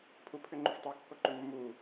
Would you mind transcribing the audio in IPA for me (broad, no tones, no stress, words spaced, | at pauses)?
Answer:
pʰupʰʏ ŋ͡ǃʏftˤokːoǃʏ mːu